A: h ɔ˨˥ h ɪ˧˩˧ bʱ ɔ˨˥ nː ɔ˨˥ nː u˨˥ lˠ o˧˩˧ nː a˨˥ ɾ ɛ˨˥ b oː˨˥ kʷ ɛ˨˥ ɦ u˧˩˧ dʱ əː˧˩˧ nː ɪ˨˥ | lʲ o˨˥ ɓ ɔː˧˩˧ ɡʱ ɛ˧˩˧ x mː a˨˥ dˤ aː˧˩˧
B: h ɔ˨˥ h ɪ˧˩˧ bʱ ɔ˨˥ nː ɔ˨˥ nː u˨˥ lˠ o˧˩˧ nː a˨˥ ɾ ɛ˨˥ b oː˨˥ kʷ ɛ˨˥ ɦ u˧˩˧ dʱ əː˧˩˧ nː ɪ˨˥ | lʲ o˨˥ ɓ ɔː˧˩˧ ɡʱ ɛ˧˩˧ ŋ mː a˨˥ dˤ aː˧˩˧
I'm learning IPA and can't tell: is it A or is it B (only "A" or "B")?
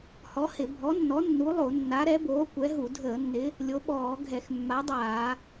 A